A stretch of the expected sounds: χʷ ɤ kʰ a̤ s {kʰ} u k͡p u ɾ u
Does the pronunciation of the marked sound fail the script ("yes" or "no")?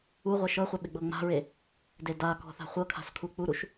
no